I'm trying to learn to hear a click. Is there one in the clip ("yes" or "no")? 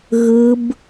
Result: no